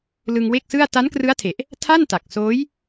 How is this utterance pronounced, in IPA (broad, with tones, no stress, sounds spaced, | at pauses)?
l ɯ˧ ŋ w e˥˩ k̚ s ɯ˥˩ a̯ t a˦˥ n k r ɯ˦˥ a̯ tʰ e˨˩ ʔ | tʰ a˥˩ n t a˨˩ k̚ s oː˦˥ j